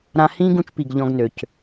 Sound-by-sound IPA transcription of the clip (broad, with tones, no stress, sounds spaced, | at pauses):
ɾ ã˧ h ĩː˦ ɡ ũ˧ t͡ʃ p i˨ ɡ ʎ ɔ̃˦ ɡ n ø˨ c